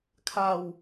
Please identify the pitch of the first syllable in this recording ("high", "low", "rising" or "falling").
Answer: falling